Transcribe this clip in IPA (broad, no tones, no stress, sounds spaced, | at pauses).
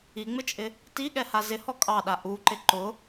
i ŋ͡m ɪ t͡ʃʼ ɪ | t i ɠ ɛ h a z ɪ h ɔ kʼ ɑ ɗ a ʔ u ǃ ɪ ǃ ʊ